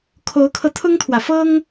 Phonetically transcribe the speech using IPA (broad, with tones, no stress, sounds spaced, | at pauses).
kʰ o˧˥ ʊ̯ kʰ ɤ˧ t̪ʰ ʊ˥ ŋ t̪ʰ w ä˨ f ɤ˥ ŋ